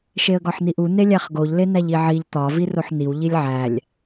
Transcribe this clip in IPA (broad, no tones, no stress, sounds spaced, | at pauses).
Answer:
ʃ e ə̯ ɡ ɒ ħ n i ʔ u n e lʲ æ χ ɡ o ʎ l e n æ ʎ i ʕ i ʎ t̪ ɒ v i r o ħ n i w ʎ i lʲ ʕ æ lʲ